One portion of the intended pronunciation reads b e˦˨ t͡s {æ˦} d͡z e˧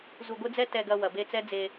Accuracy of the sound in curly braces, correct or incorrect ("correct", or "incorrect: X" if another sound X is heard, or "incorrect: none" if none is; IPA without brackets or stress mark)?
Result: incorrect: ɛ˦